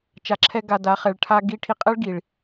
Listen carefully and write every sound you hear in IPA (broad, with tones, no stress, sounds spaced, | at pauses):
t͡ʃ a˧ ǁʰ ɛ˦ ɡ a˧ d a˨˦ χ ɛ˨ ɭ ʈʰ a˦ ɡ i˦ ʈʰ i˧ qʼ ɛ˦ ɭ ɡ i˨ ɭ